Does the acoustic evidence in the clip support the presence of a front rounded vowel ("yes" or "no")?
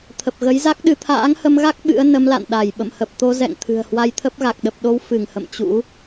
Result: no